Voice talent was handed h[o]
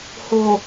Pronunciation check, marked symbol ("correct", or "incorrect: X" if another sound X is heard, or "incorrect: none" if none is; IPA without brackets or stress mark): correct